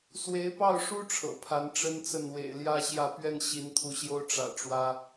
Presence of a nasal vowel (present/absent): absent